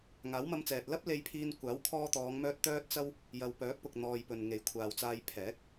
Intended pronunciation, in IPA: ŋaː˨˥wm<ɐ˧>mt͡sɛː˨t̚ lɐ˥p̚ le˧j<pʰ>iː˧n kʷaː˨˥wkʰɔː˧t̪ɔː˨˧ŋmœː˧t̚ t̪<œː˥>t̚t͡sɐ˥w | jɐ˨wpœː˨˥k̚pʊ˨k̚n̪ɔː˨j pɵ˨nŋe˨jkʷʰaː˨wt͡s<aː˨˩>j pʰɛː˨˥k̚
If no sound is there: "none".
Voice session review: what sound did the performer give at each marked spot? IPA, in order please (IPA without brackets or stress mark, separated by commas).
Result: ɐ˧, pʰ, œː˥, aː˧